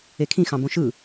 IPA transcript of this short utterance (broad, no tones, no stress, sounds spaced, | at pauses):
e kʰ ĩ x ɑ̃ b õ ʃ ɯ